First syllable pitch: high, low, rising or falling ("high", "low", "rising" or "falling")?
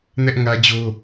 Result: high